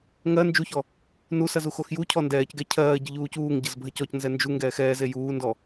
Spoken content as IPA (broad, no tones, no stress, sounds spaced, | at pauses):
ŋ ɜ n d͡ʒ u ç ɔ | n u s ɐ z u x o x j u cʰ ɔ n d ɛː c ɡ ɛ cʰ ɜː ɟ ə ʎ uː c uː ŋ ɟ ə z bʱ ɐ c ɔ c n z ɛ n d͡ʒ u ŋ ɡ ɛː x ɛː z e j uː n d ɔ